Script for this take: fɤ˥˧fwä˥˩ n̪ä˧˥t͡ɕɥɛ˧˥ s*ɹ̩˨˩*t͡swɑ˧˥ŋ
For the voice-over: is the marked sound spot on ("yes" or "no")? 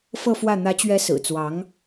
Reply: yes